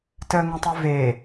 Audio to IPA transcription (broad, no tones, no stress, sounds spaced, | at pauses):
t əː ŋ ə̃ tˤ u v e